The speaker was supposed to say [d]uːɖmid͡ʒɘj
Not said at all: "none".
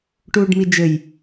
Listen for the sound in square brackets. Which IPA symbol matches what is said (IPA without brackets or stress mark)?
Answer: ʈ